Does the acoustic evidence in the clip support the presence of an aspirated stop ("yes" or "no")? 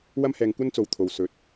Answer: yes